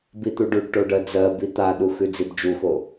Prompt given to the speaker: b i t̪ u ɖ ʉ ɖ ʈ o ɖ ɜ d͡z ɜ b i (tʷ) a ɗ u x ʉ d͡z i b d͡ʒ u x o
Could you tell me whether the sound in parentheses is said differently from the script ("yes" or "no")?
yes